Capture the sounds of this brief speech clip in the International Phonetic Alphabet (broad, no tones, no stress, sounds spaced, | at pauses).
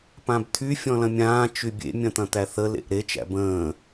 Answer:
p ã b t̪ʰ y fʲ ɔ̃ l ɐ̃ mʲ ãː t͡ʃ y bʲ ḛ mʲ ɐ̃ t̪ ɐ̃ t̪ æ θ ə l ḛ ʔ ɾ e t͡ʃ æ̰ b ə̃ː